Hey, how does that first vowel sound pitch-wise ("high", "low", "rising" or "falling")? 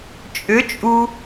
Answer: rising